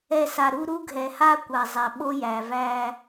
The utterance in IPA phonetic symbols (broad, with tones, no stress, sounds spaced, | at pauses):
ɛ˨ s a˨ ɾ u˦ ɾ u˦ ɡʱ ɛ˨ h a˦ kʷ a˨ zˤ æ˨ ɓ o˦ j æ˨ v æ˦